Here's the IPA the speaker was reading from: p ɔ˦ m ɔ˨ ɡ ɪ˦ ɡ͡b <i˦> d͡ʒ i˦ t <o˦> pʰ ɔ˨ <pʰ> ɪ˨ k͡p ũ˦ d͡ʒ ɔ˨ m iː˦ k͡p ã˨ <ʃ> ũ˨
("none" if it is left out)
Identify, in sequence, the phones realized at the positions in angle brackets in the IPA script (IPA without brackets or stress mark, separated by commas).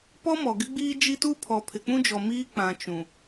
iː˦, u˦, pʰ, t͡ʃ